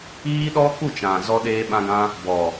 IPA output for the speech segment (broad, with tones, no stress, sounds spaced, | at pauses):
iː˦ ɗ ɔ˦ k u˦˨ t͡ʃ ã˨ z ɔ˧ ɗ eː˧ ɓ ã˧ ɡ ã˧ | b ɔ˨